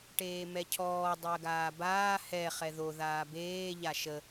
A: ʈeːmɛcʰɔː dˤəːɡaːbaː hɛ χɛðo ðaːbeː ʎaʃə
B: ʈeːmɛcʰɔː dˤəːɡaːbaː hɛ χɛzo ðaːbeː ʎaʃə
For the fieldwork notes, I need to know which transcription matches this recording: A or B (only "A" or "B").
A